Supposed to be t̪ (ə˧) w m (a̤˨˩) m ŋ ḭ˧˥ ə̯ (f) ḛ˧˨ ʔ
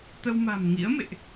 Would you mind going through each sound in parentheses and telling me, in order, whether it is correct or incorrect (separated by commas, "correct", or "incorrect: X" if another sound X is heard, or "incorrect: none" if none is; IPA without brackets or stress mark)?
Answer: correct, correct, incorrect: m